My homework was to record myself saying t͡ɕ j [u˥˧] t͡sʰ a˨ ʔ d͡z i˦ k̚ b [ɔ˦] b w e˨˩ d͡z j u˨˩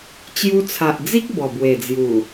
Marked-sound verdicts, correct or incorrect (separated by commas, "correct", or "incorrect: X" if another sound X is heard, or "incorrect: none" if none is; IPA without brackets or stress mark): incorrect: u˧, incorrect: ɔ˨˩